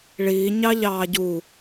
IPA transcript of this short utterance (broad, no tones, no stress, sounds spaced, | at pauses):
ɭ iː ɲ ɑ ʎ ɑː ɟ u